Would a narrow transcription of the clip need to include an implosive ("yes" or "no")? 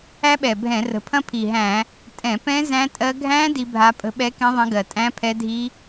yes